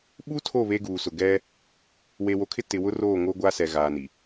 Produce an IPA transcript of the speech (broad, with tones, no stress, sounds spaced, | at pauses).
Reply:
ɓ u˦ tʰ o˦˨ β e˦ ɡ uː˨ s ʊ˨ ɡ ɛ˦ | w e˨ w o˨ kʰ ɪ˦ t ɪ˨ w ʊ˦ r oː˦˨ ŋ o˦ ɡʷ a˦ s ɛ˨ ɣ aː˨ n i˨